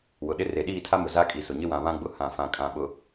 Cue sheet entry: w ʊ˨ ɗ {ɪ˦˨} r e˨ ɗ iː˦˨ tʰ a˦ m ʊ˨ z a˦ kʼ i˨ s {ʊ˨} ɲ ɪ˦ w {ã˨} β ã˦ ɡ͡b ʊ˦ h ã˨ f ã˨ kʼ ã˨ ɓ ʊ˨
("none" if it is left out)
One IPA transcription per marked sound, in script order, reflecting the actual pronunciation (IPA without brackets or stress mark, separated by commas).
ɪ˦, ʊ˨, ã˨